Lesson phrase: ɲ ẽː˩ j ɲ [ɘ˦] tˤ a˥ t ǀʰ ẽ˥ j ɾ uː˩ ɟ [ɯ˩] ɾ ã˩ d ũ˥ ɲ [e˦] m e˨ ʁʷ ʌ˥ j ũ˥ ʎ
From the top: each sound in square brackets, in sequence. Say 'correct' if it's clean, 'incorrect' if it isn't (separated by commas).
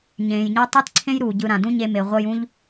incorrect, incorrect, correct